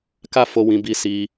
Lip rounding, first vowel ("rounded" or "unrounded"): unrounded